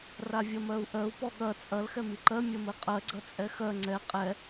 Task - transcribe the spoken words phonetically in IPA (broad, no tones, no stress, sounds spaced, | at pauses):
r a vʲ ɐ m ɜ u̯ ʔ ɜ u̯ p ɔ ɠ ɐ t͡sʼ ɐ l x ɛ m i ǃ ɜ mʲ ɐ m ɘ qʼ ɜ ɡ͡ǀ ɐ t͡sʼ ɛ x ɜ ŋ͡ǀ ɛ qʼ ɛ